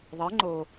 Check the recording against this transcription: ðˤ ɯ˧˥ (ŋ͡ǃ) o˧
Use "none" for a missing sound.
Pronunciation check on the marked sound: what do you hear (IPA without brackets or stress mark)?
ŋ͡ǃ